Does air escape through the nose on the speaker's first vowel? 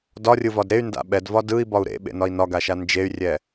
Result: no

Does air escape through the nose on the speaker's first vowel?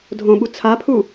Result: yes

